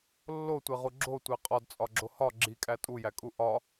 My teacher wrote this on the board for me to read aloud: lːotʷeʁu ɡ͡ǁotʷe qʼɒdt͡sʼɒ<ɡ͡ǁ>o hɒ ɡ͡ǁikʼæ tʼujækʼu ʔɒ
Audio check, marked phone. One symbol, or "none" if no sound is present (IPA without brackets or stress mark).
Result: ɡ͡ǁ